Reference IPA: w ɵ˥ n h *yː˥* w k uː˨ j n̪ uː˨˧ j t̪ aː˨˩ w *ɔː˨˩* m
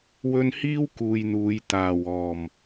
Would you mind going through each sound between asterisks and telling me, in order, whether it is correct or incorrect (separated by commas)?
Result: incorrect, correct